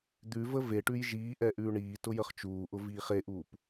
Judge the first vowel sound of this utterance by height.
high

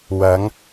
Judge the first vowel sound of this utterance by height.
low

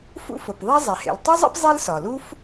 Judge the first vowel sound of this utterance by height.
high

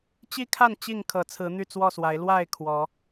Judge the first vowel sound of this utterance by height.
high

